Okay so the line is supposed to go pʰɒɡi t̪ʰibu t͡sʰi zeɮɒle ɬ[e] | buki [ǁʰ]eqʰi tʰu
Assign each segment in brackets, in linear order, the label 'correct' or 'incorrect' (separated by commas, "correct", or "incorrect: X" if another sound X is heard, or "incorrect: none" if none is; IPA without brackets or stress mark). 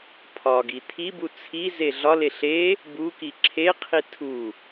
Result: correct, correct